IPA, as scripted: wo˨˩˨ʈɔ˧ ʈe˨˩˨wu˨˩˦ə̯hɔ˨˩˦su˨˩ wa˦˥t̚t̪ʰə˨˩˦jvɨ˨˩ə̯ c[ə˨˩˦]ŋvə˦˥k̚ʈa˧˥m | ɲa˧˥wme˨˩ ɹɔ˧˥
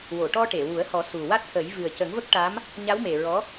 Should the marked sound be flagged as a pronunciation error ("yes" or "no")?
no